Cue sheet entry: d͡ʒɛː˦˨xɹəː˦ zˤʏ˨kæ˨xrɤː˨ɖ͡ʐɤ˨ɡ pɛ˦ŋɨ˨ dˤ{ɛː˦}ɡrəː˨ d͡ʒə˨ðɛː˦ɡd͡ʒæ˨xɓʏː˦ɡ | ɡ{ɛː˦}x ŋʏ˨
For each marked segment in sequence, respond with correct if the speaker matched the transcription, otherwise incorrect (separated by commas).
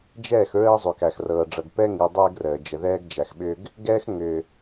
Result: correct, correct